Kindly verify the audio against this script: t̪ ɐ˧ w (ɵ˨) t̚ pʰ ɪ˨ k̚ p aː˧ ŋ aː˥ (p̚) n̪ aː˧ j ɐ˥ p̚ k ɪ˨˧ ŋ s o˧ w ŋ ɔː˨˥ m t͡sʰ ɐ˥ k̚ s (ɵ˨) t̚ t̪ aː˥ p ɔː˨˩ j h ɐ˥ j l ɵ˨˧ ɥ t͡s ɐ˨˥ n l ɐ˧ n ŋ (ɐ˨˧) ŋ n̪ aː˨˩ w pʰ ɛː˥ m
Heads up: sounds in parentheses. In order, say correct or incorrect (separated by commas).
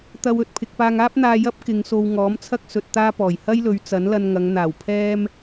correct, correct, incorrect, correct